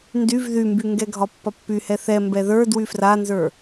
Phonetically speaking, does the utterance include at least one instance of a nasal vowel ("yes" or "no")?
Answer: no